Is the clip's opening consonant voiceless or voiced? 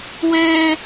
voiced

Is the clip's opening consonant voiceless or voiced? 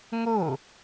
voiced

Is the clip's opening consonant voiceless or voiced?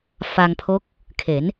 voiceless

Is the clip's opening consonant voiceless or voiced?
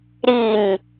voiced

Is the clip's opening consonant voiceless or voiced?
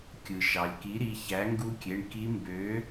voiceless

